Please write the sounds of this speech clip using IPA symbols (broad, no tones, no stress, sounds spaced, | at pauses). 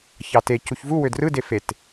ç ɑ t e c u ç v u w ø d r ɯ d e f e t